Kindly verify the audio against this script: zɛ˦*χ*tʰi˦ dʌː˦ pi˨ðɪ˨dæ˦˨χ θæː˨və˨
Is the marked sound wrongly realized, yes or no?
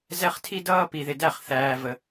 no